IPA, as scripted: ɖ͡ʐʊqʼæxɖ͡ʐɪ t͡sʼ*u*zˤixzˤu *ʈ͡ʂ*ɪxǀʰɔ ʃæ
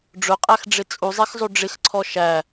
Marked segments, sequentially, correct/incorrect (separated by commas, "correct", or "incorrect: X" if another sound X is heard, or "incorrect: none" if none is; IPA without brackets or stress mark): correct, incorrect: ɖ͡ʐ